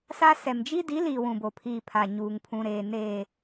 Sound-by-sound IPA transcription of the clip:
sa˦sɛ˨m d͡ʒi˦di˨˦ liː˨ wũ˨bo˨pʰiː˨ pʰa˨ɲuː˨ŋpʰũ˨ɾeː˨ neː˨

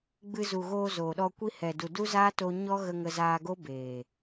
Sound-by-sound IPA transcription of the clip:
ɡ͡bɨ˧ zu˨ ɣoː˧zoː˨ɗɔ˧ kʷi˧hɛ˨du˨ du˦zaː˦to˧ɲɔ˦ ɣə˧ŋə˧zaː˧ɡo˦ beː˨

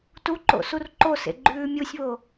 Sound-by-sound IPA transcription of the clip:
tuǃo̰ surǃosḛ ɡ͡ǃʉːmʲusʲβo

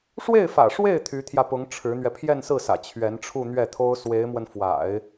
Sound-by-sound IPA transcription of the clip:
ʂwe˥˩ɪ̯fä̰˨˩ʂwe˥˩ɪ̯ t̪ʰy˧˥t̪ʰjä˧pʊ˧˥ŋ ʈ͡ʂʰɻ̩˧˥n̪ɥɛ˧ pʰjɛ˥˧nsɹ̩˥˩sä̰˨˩ t͡ɕʰɥɛ˧˥nʈ͡ʂʰu˥˧n̪ɥɛ˥˩t̪ʰo˥ʊ̯ swe˧˥ɪ̯mwə˧nfwa̰˨˩˦ɪ̯

